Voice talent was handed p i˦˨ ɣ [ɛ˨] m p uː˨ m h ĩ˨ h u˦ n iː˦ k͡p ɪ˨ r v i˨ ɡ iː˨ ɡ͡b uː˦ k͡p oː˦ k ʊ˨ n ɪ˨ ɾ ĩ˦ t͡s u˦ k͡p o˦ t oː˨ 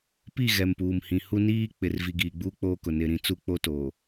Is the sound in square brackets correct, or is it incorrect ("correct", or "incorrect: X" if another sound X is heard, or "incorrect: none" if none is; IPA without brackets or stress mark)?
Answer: correct